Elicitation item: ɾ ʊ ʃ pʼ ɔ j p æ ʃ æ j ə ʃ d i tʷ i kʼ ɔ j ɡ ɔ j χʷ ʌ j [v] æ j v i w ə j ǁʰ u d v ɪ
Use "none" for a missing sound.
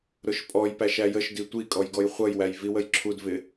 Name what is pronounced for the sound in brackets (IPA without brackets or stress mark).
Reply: w